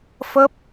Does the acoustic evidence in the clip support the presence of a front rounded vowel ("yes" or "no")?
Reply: no